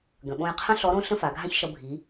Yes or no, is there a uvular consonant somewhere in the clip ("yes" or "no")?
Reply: yes